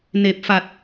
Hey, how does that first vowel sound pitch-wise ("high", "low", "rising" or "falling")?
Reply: low